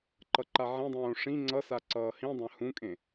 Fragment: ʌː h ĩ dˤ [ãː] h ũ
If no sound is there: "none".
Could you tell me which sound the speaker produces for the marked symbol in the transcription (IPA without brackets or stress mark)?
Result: ã